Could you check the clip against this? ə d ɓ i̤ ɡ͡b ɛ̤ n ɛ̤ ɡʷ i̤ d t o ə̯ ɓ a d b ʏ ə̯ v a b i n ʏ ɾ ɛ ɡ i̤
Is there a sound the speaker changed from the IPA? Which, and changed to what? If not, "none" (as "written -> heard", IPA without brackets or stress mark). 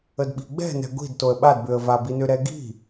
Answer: none